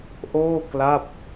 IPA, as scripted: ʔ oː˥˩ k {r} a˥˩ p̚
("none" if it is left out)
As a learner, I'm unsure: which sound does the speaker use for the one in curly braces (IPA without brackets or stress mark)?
l